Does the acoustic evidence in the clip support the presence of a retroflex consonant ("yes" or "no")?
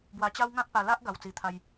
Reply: no